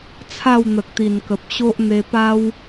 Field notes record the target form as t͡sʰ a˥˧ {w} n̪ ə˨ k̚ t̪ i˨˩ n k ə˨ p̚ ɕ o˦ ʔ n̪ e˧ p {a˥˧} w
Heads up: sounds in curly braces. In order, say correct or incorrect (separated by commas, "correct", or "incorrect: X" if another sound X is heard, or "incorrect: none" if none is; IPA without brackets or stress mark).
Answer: correct, incorrect: a˧